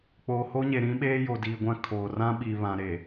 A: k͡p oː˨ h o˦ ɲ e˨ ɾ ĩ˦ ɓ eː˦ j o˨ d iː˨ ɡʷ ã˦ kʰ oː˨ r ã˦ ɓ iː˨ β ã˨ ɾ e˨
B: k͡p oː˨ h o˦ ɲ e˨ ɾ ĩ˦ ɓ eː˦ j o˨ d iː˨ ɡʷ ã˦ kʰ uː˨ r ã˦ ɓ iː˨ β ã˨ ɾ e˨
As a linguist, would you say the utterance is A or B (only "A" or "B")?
A